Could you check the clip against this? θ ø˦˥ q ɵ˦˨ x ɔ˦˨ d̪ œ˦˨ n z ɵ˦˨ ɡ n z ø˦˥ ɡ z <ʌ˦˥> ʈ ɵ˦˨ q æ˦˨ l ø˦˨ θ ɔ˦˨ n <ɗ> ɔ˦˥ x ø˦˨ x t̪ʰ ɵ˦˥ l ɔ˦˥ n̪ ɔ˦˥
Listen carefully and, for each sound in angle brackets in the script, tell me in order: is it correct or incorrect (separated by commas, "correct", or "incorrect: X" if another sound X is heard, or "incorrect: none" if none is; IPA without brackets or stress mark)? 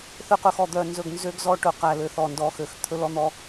incorrect: ɔ˦˥, incorrect: d